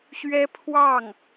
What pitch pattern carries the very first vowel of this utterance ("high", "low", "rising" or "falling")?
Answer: high